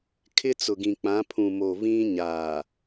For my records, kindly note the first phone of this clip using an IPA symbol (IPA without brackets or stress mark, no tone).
kʰ